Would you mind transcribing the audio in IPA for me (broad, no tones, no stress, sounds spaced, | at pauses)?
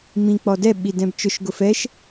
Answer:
m ĩ k͡p ɔ d ɛ ɓ i d ɛ̃ b t͡ʃ ʊ ʃ ɡ ʊ f ɛ ʃ